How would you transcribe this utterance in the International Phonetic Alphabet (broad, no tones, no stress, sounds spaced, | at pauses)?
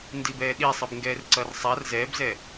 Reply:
n d i b ɛː ɗ i sˤ ɯ b ŋ ɡ ɛː r ǀ ʌ r sˤ a r z ɛː b z ɛ